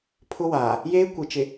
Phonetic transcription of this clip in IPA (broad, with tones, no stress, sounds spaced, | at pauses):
pʰ ʊ˦ w aː˨ | j eː˦ kʷ i˨ t͡ʃ ɪ˨